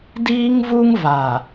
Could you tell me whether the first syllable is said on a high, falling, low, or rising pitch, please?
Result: high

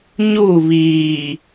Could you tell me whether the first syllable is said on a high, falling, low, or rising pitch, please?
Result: falling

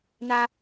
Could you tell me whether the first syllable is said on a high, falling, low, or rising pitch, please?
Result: high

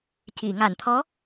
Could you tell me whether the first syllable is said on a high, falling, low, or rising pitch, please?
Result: low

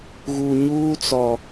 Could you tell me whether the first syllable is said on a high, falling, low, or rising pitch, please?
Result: low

